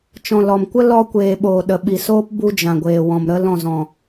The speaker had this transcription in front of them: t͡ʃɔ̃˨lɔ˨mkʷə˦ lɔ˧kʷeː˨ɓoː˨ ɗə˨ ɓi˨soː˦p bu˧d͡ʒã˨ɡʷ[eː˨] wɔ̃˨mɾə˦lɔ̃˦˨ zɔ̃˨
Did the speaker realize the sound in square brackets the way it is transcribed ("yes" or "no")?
yes